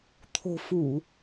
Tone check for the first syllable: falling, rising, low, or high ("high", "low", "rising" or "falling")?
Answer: low